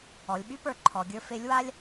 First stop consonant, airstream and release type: implosive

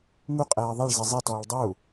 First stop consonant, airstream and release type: ejective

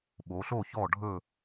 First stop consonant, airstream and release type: implosive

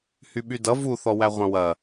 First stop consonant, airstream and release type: implosive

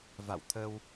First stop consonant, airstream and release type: aspirated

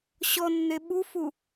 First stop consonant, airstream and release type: implosive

